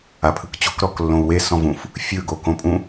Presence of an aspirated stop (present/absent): present